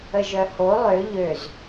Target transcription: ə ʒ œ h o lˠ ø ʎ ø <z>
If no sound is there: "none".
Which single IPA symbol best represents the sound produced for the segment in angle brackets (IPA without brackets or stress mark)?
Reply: z